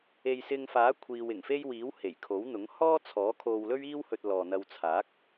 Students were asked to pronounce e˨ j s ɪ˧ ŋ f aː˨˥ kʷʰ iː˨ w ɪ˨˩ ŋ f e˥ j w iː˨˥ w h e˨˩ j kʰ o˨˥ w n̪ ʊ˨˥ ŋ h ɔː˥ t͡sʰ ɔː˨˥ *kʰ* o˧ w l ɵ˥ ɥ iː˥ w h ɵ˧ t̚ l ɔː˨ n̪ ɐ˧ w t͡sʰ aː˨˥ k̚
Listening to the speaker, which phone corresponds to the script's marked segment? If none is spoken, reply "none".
kʰ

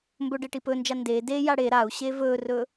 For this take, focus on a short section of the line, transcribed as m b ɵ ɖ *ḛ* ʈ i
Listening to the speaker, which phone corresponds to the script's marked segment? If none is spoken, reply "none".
e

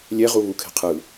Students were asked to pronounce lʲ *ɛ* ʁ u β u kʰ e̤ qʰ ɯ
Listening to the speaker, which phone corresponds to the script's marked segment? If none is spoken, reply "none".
ɛ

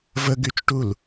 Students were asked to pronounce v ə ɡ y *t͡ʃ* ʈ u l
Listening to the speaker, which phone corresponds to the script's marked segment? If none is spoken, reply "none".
t͡ʃ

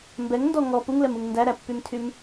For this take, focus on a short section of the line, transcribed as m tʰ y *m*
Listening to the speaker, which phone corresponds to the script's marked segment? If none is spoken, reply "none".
m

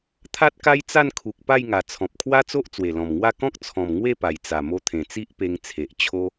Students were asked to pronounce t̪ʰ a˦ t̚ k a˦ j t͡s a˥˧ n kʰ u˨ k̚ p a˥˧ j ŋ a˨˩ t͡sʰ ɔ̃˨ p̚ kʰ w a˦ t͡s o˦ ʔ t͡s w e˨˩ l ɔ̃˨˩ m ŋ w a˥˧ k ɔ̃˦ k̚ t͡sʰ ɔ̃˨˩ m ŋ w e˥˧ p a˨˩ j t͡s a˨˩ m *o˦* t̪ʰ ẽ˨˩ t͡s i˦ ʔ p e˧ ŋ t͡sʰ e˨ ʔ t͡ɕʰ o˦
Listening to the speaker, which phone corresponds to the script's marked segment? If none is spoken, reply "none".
o˧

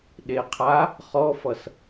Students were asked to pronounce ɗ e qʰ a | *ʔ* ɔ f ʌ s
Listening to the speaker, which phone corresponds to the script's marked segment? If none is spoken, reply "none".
χ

